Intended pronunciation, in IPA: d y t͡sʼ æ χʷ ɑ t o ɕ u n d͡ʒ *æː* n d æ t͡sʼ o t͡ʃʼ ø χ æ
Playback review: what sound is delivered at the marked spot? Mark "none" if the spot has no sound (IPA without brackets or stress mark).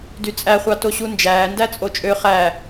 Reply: æː